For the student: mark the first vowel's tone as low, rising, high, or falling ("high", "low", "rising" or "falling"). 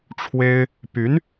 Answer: high